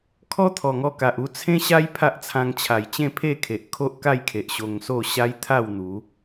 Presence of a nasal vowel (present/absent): present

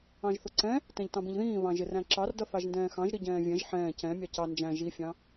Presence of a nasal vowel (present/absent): present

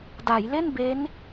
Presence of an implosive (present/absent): absent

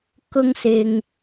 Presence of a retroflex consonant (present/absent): absent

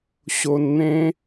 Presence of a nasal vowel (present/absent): present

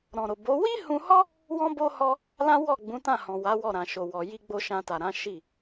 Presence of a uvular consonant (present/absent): absent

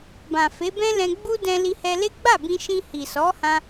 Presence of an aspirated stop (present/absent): absent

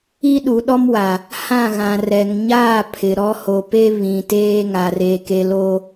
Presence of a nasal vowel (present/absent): present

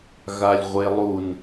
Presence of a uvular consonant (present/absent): present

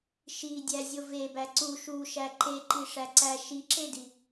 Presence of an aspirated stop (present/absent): absent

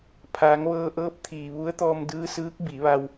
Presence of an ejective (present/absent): absent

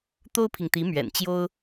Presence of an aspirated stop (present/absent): present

